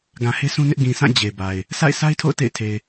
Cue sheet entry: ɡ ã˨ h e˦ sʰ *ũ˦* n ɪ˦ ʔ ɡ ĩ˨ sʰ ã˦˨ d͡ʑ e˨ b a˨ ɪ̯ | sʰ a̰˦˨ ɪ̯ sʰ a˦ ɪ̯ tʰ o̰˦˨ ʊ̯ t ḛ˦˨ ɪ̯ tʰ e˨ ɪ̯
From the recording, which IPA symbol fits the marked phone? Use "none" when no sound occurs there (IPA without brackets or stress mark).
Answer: ũ˦